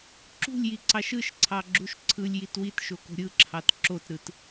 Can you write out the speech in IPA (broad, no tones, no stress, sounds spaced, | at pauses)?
ǁ ṳ lʲ j i ǀ ɑ ʃ ɯ ʃ ǀʰ ɑ ɡ͡ǁ u ʃ ǀʰ ɯ lʲ j i t w i t ʃ o k o̤ ɾʲ ɯ ǁʰ ɑ t ǁ o t ɾ ɯ t